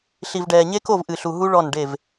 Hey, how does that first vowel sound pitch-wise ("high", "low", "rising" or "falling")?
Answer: low